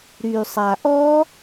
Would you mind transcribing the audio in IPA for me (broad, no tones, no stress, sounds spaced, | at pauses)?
ɾ y sˤ a ʔ ɔ